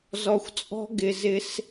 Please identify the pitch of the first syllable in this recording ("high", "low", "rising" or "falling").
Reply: low